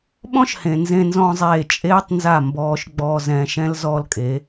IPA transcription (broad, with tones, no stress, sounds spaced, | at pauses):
ɓ ɔ̃˦ ʃ h ẽ˨ n z ẽ˧ n z ɔ̃˧ zˤ eː˦˨ t͡ʃʼ eː˦ tˤ n z a˦˨ m b ɔː˧ ʃ ɡ͡b ɔː˧ z ɛ̃ː˧ ʃ ɛ̃˦ l z ɔː˦ l kʼ e˨˦